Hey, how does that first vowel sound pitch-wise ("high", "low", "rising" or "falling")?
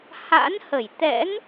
rising